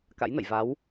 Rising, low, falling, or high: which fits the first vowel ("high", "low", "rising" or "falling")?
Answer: rising